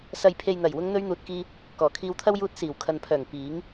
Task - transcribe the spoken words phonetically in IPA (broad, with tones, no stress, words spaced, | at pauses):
sɐ˨jpʰe˨jn̪ɐ˨˩j wʊ˨˧ŋn̪ɵ˧ɥn̪uː˨t̚kiː˧ | kɔː˨˩kʰiː˧wt̪ʰɐ˥w juː˧t̚ siː˨˩wkʰɐ˨npʰœː˨˩ŋ piː˨˥ŋ